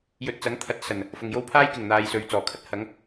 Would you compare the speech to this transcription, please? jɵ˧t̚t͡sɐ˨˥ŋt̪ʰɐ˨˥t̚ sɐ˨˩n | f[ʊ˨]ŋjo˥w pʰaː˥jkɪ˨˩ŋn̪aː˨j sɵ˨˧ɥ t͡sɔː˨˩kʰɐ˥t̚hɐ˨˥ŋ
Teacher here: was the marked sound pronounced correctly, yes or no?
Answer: yes